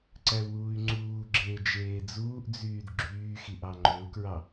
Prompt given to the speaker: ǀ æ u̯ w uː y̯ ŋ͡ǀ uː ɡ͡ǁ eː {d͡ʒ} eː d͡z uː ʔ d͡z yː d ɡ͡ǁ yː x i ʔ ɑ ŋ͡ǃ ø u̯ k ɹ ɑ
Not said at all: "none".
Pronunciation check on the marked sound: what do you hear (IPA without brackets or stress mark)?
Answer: d͡ʒ